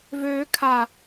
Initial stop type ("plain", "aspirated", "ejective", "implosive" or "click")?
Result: aspirated